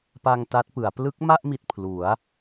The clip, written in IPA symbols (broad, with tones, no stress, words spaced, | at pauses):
pa˧ŋ ta˦˥t̚pɯ˩˦a̯ plɯ˦˥k̚ma˥˩ʔmi˨˩t̚ pʰlu˩˦a̯